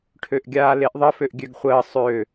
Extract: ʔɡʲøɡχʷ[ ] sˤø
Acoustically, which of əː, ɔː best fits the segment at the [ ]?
əː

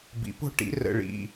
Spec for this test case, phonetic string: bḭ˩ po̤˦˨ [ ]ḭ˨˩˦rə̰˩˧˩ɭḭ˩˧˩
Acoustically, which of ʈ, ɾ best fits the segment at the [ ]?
ʈ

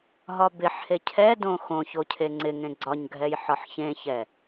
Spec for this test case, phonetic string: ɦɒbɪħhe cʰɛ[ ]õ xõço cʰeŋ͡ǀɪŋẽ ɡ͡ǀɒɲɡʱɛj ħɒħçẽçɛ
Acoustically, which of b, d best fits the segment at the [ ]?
d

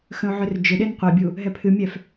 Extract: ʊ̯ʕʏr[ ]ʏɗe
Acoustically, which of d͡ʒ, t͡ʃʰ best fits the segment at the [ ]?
d͡ʒ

